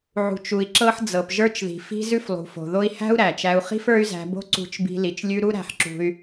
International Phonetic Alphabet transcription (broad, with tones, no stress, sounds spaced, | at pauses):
ʕ ṳ˩ t͡ʃ u˩ i̯ ǁ ɤ˧ ħ d͡z ɤ˩ p ʒ ə˞˧ t͡ʃ ð i̤˩ f i̤˧ z ʉ˧ f lˠ ṳ˩ f o̤˩ ð o˧ i̯ h æ̤˥ u̯ ɾ æ˩ t͡ʃ æ˧ u̯ χ i̤˥ f ə˞˥ y̯ z æ̤˧ b o̤˥ ǀ ṳ˧ t͡ʃ b i̤˧ l i˩ t͡ʃ lʲ ʉ˧ ɾ u˥ ɾ æ̤˧ ħ ǁ ṳ˧ y̯